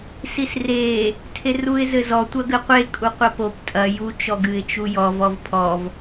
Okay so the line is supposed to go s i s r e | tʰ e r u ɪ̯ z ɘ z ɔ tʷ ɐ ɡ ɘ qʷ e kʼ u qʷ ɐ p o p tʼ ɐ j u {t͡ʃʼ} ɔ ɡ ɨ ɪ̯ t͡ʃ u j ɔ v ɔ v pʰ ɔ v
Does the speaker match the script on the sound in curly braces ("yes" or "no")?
no